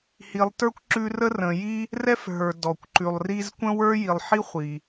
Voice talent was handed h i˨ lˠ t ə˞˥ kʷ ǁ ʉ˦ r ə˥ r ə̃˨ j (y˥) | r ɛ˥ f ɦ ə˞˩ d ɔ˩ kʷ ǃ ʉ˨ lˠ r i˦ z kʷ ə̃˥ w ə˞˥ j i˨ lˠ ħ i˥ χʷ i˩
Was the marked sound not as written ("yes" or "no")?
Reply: yes